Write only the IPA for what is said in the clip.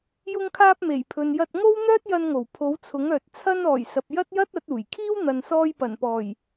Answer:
jʊ˧ŋkʰaː˧p̚me˨˩j pʰɵ˨njɐ˧t̚ ŋo˥w n̪œː˥t̚jɐ˧nŋo˨˩w pʰo˨˥wt͡sʰʊ˨˥ŋœː˨t̚ t͡sʰɐ˧nɔː˨˩j sɐ˨p̚jɐ˥t̚jɐ˥t̚ ɐ˨˥t̚uː˨˩jkʰiː˥w n̪ɐ˨nsɔː˧j pɐ˨˩npɔː˨˩j

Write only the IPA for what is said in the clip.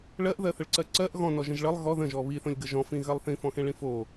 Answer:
ɭɜʔðɜθəɭǀɜ ǀɜʔ ɣɔ̃nɔʒə̃ʒ ɭəlˠ ɣɔ ðə̃ʒɔ βiθõlʲɡə ʒɔ̃fĩɣɜlˠ θĩfɔ̃xẽɭĩ fo

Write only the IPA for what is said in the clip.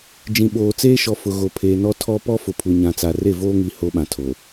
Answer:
d͡ʒĩ˨ɓoː˨t͡seː˦ʃɔ˨ fʊ˨ ɣo˨pʰeː˨nɔ˦ tʰɔ˦ pɔ˦fʊ˨pʰu˨ ɲã˨t͡sa˨ re˦˨voː˦ŋi˨ ho˦ɓã˨tʰo˨

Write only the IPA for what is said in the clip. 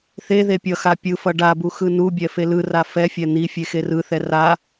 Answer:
θe ðepʲʌxa pʲɯfʌ ɖabu xɯnubʲɛ felɯra fɛfʲɛ n̪ifʲe xerɯθɛ ra

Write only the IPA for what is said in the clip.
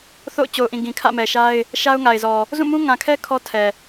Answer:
θo̰˦˨ʊ̯t͡ɕo˨ʊ̯ʔĩ˨ ɡĩ˨kʰä̰˦˨mɛ˨ʃa˦ɪ̯ | ʃa˦ʊ̯ŋa˨ɪ̯zɔ˨ | zũ˦˨mũ˦ŋã˨kʰɛ˦ kʰɔ˦tʰɛ˨

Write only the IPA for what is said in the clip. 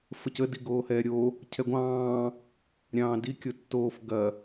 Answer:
fəcə diɡoːhɛːɾʲo | cʰɛɡʷɑ̃ː | ɾʲɑ̃ːdi kʲotːoːf ɡɐ

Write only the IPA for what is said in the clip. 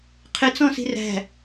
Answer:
qʰɪt͡sɔ̃si̤ ræ̤

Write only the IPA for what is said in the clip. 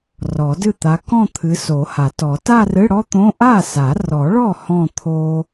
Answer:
rɔ˨˩˦dɨ˥˩t̪a˨˦ kɔ̃˥˧t̪ʰɨ˨˦ so˨˩˦ha˨˩˦tɔ˨˩˦ ta˥˧rɨ˧˥˧ɽɔ˥t̪õ˧˥˧ ʔa˥˩sa˨˩˦rɔ˨˩˦ɭɔ˥˩ hɔ̃˥˧t̪ʰo˥

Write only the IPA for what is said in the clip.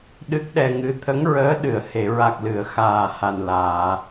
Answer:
ɗɨ˦˥k̚ɗɛ˧ŋɨ˧˥ t̪ʰə˧˥ŋɹəː˧˥ ɗɨ˨˩˨ə̯he˨˩˨ ɹa˨˩k̚lɨ˨˩˨ə̯ xaː˨˩ha˨˩nlaː˨˩˨

